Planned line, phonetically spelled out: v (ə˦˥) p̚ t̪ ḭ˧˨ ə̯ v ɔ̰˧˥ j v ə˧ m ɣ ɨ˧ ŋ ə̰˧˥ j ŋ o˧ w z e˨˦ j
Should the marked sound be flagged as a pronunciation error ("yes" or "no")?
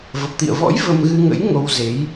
yes